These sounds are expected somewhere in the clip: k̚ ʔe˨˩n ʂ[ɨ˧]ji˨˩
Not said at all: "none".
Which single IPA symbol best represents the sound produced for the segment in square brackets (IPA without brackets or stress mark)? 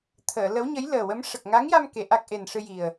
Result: ɨ˧